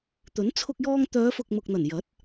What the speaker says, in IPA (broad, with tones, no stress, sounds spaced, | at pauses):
t̪ ɵ˨˥ n t͡sʰ ʊ˧ k̚ j ɔː˧ ŋ t̪ œː˨˧ f ʊ˨ k̚ m ʊ˨ k̚ n̪ ɐ˨˩ n j ɐ˨˥ t̚